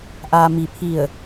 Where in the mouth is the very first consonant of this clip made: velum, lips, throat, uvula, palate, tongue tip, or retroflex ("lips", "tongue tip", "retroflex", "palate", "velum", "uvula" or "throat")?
throat